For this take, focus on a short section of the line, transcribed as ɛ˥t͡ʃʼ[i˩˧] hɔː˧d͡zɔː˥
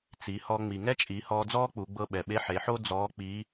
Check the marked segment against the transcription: correct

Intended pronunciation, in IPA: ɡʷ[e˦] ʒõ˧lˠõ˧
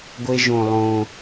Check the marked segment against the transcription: correct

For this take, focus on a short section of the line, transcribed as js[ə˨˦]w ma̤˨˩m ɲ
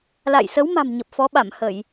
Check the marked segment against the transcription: correct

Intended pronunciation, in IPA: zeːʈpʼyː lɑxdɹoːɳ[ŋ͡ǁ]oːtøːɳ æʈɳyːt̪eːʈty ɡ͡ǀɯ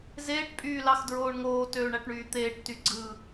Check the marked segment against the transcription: incorrect: ŋ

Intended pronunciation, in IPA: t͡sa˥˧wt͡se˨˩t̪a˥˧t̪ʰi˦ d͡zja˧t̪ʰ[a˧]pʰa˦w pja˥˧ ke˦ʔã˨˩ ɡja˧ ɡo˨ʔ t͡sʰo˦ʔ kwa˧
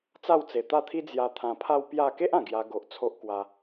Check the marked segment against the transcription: incorrect: ã˧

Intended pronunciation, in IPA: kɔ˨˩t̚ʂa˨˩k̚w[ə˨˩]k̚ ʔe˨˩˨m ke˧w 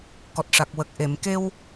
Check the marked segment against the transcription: correct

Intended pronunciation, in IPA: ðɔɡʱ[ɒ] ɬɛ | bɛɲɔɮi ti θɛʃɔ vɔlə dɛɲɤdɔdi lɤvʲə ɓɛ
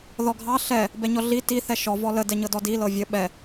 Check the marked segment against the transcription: incorrect: ɑ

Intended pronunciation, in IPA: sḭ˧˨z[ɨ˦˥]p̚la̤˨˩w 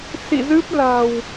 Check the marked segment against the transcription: correct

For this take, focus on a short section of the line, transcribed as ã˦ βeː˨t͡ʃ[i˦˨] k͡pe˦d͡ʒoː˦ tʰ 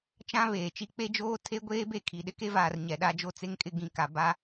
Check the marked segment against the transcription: incorrect: i˦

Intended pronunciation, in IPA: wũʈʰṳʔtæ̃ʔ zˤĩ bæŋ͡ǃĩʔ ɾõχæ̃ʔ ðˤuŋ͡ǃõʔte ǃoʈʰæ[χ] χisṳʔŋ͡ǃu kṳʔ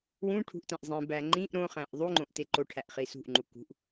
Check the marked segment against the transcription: incorrect: ʔ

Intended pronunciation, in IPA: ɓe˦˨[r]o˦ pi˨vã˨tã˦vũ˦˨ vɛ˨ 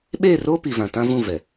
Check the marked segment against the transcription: correct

